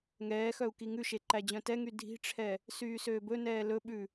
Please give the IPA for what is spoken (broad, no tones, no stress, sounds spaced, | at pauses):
ŋ ɛː x œ u̯ k i ŋ ʉ ʃ e ǃ æ d͡ʑ œ̃ t ɛ ŋ y dʱ i̤ ʈ͡ʂʰ ɛ | s yː s øː b ɵ n ɛː l ɵ ɓ ʉ